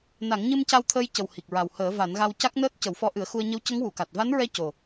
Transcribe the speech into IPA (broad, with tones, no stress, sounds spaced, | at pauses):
n a˨˩˦ ŋ ɲ ɨ˧ m c a˧ w t̪ʰ əː˧ j c ə˨˩ w h i˨˩ k̚ ɹ a˨˩ w h əː˨˩˦ v a˨˩˦ n ɣ a˧ w c a˦˥ k̚ n əː˦˥ t̚ c ə˨˩˦ w f ɔ˧˥ ʔ ɨ˨˩˦ ə̯ x u˧ ə̯ ɲ ə˧˥ w c ə˧˥ ŋ w u˨˩˨ k a˨˩ t̚ v a˧˥ n ɹ ɛ˧ c o˨˩